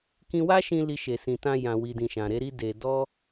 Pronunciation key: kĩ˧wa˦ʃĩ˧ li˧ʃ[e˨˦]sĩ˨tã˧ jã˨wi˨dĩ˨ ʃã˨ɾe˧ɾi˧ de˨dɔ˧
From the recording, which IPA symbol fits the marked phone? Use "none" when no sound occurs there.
e˨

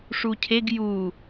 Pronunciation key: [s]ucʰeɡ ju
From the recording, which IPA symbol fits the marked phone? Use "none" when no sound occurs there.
ʂ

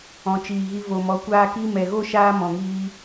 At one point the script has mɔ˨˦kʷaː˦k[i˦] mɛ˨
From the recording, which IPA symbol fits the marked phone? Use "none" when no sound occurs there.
i˦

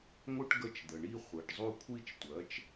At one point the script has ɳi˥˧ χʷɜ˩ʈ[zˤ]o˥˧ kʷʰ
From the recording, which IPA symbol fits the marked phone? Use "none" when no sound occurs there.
zˤ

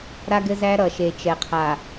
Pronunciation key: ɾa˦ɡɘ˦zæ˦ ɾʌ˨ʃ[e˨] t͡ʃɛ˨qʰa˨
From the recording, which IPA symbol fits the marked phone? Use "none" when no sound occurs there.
e˨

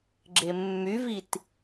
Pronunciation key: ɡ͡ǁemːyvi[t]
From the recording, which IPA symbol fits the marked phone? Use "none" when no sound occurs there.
t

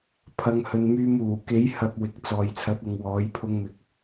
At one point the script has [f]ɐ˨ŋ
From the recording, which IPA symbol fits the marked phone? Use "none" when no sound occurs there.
pʰ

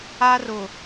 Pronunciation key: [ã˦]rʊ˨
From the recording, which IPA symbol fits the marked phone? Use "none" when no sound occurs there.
a˦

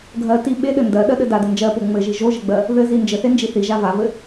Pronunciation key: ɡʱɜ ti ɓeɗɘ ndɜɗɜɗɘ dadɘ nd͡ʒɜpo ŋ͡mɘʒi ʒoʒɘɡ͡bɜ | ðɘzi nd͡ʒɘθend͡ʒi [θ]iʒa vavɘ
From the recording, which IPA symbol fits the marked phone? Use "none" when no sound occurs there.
θ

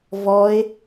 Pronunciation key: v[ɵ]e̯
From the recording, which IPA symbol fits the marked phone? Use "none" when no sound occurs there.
ɔ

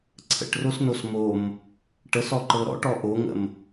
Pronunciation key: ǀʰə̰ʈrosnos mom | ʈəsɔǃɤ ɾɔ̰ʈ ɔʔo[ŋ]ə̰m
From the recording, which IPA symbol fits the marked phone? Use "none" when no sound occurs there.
ŋ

